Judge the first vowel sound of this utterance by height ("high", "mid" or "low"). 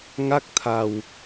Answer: low